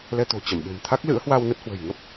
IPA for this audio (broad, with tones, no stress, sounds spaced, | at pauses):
l ɛ˧ t̪ o̤˨˩ t͡ɕ ə˧˩ m ɓ e̤˨˩ m t̪ʰ a˦˥ k̚ l ɨ̰˧˥ ə̯ h w a˧ w n ə˦˥ t̚ h w ə̤˨˩ j ŋ ə˦˥ p̚